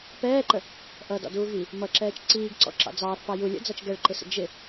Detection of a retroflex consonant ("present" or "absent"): present